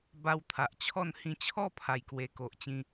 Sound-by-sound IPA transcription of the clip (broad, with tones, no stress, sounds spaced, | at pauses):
b a˧ w t̪ʰ a˨ ʔ t͡ɕʰ ɔ˥˧ n h ĩ˧ t͡ɕʰ ɔ˥˧ pʰ a˨˩ j k w e˨˩ k o˨ ʔ t͡ɕ ĩ˧